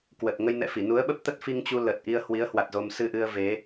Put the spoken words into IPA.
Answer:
kwə˨˩t̚ŋə˧jnɛ̰˧˨fi˧˩ nu˨˦ə̯ɓə˦˥p̚t̪ə˦˥t̚ fi˧ŋt͡ɕu˧ lə˨˩t̚ʔi˧ə̯ hwi˨˦ə̯hwa˨˩t̚ zo˧m sɨ˧ʔɨ˧ə̯ ve˨˦

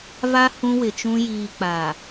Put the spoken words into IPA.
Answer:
va˦ hũ˦wɪ˨t͡ʃũ˦ jiː˨k͡paː˨

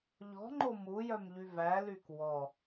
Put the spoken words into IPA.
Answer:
ʎɔ̤ ŋ͡ǃomujœmʎy væ lykwɔ

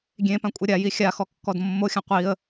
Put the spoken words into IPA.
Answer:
ɡʲẽ pãkʷʼɛɾʲaji xʲaxɔ kːɔdmːoxʲã qʷiə̯

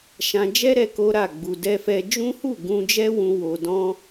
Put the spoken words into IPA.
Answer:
ʃã˧d͡ʒɛ˦ɾɛ˧ ko˦ɾa˦˨ ɡ͡bu˧dɛ˦fɛ˦ d͡ʒũ˦hu˦˨ ɡũ˧d͡ʒɛ˦wũ˧ wo˧dɔ̃˦

